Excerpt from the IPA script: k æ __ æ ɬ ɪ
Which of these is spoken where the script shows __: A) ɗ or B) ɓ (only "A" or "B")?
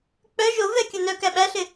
B